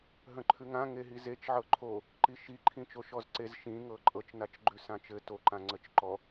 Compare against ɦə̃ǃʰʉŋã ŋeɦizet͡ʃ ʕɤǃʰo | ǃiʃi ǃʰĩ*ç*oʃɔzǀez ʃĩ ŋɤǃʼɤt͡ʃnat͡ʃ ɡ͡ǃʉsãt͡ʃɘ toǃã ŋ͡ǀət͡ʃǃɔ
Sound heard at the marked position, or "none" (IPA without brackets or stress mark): t͡ʃ